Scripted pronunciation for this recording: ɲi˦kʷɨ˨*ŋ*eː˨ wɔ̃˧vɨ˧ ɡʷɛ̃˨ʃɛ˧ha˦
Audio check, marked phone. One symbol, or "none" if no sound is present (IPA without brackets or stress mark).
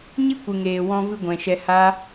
ŋ